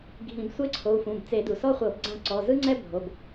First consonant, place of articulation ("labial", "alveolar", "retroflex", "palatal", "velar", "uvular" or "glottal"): velar